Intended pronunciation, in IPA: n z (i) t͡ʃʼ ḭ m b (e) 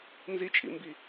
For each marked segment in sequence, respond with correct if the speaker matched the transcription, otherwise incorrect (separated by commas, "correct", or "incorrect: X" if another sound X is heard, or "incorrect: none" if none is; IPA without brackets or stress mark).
correct, incorrect: i